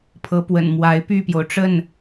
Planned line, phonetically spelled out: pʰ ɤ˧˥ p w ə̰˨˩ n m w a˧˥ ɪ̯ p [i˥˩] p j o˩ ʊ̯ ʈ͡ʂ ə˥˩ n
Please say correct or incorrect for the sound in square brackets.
incorrect: y˥˩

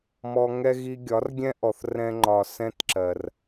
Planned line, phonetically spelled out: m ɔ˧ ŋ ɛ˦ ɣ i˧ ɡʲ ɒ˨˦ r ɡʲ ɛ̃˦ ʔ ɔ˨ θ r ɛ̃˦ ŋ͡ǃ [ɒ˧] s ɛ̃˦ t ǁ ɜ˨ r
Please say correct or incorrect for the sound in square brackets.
correct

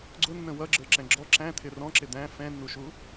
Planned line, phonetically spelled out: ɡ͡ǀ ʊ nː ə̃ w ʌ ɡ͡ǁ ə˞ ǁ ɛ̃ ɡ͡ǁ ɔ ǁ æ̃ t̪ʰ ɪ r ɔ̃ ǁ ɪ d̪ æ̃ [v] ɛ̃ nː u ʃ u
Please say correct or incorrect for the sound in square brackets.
incorrect: f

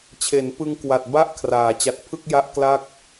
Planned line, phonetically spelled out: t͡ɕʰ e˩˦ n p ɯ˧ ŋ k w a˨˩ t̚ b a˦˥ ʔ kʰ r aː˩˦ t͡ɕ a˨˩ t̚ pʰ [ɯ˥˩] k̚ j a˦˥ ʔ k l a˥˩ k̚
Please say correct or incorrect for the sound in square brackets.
correct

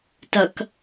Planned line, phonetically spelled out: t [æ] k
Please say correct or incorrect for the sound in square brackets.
incorrect: ɐ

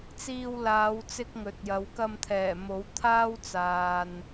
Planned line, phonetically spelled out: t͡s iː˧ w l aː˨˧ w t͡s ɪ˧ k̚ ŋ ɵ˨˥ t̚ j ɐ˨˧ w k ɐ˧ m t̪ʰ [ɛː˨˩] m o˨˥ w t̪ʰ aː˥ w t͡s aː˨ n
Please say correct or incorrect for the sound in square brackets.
correct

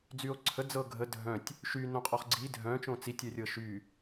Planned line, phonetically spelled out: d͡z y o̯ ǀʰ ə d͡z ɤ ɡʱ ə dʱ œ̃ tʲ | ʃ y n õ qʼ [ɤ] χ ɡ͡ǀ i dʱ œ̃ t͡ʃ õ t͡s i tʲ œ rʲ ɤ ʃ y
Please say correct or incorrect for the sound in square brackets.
incorrect: ɔ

